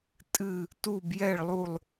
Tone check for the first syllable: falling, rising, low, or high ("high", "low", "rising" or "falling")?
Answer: falling